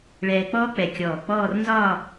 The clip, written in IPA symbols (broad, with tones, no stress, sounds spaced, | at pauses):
ɭ ɛː˧ k͡p ɔː˥ k͡p ɛ˧˩ kʲ ɔː˧˩ k͡p ɔː˥˧ r n z ɒː˥˧